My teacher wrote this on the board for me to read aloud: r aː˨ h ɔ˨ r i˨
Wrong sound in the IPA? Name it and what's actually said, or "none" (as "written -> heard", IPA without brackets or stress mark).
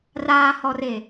i˨ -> e˨